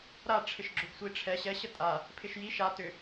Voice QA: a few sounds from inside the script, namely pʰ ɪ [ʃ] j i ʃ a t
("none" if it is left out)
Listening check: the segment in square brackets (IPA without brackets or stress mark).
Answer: ʃ